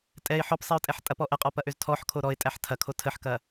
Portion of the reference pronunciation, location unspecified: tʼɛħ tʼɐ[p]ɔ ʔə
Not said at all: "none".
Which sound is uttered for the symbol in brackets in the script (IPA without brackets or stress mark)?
p